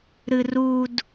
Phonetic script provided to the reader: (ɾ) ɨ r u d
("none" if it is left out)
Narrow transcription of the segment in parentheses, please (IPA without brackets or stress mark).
ɾ